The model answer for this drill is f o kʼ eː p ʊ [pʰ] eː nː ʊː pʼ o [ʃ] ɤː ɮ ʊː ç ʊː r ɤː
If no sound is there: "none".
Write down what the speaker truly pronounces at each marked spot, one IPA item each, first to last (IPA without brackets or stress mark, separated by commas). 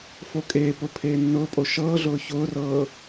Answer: pʰ, ʃ